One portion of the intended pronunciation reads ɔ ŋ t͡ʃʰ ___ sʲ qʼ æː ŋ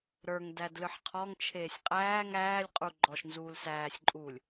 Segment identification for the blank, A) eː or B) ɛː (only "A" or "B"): A